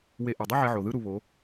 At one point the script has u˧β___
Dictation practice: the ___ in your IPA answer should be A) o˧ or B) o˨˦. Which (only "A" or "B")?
B